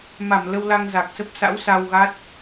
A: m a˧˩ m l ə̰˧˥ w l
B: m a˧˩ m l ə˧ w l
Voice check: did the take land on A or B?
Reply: B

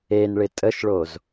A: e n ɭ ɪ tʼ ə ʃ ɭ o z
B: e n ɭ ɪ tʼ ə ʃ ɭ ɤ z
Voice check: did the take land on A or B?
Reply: A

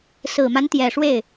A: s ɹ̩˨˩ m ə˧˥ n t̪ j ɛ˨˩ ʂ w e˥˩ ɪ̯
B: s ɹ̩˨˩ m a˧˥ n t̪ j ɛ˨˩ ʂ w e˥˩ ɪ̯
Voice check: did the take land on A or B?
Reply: B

